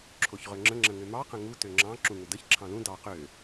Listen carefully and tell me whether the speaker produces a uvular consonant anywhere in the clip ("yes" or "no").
yes